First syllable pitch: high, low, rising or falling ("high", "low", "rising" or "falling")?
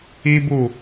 high